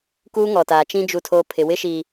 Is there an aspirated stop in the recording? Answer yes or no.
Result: yes